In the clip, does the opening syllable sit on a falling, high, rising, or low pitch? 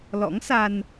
rising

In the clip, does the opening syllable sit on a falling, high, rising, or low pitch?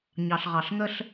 low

